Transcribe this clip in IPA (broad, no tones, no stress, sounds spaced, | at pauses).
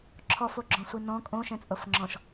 ǁʰ ɔ f o ɡ͡ǁ ɔ̃ sʷ i n ɔ̃ kʼ õ ʃ ɛ̃ t͡sʼ ɤ f ŋ͡ǁ ɔ̃ ʃ